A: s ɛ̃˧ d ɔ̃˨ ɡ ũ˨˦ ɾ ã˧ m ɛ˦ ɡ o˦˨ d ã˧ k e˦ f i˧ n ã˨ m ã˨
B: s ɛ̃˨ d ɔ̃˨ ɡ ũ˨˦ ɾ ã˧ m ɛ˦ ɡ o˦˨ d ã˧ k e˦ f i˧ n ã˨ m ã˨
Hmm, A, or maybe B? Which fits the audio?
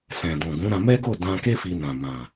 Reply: B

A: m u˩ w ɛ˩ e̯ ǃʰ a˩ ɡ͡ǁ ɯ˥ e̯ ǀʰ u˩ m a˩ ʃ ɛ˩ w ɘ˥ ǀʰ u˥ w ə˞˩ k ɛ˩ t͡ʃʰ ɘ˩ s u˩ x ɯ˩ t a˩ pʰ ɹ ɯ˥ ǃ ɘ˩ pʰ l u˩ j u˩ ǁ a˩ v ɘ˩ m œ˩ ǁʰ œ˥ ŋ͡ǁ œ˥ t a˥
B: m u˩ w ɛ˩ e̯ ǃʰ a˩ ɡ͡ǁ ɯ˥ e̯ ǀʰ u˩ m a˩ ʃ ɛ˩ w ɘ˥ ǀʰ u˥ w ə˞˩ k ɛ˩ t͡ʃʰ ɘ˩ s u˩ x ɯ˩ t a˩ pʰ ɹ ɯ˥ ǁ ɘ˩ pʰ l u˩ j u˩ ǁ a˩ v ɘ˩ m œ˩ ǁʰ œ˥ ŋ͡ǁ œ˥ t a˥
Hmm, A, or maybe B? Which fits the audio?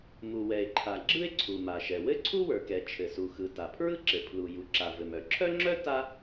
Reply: B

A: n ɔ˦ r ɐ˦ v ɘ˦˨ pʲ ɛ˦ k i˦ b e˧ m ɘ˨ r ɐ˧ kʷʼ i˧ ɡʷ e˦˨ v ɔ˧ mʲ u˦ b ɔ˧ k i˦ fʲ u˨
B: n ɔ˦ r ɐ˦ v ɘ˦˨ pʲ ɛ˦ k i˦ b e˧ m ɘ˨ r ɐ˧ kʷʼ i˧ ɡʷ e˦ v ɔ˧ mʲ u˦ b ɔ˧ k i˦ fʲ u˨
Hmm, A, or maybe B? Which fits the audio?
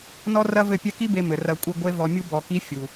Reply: B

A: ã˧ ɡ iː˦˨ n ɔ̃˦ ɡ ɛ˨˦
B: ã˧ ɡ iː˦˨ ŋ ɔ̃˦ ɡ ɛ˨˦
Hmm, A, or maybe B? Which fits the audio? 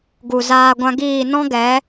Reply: A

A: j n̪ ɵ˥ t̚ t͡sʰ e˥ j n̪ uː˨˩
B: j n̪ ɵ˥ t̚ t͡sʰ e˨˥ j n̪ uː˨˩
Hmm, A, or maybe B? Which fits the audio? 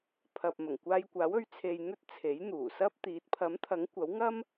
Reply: B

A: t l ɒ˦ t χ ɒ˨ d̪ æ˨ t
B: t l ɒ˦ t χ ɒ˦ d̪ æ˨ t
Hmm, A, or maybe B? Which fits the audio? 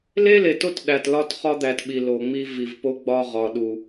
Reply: B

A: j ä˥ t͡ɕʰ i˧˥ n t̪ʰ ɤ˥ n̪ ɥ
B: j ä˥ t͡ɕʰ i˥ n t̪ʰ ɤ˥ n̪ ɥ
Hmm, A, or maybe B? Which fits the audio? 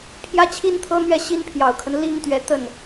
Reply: B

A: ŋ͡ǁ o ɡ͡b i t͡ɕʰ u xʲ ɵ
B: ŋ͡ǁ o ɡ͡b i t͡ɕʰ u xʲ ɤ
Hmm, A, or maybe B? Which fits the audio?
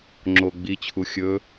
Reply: A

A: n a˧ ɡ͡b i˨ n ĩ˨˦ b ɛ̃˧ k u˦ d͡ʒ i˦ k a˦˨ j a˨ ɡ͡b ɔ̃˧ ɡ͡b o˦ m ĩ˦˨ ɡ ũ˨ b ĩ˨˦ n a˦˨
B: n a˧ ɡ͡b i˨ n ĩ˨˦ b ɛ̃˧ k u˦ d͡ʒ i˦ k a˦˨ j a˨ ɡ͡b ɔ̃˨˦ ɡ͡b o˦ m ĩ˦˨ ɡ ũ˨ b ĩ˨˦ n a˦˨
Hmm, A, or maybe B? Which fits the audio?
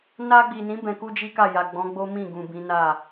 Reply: B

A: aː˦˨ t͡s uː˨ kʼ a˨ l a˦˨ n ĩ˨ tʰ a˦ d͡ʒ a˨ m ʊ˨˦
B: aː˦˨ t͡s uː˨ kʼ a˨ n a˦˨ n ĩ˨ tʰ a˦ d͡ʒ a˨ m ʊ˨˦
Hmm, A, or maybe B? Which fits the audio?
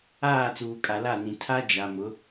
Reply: A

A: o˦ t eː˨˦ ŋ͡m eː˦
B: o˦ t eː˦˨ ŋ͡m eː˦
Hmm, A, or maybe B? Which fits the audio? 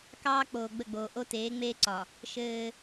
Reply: A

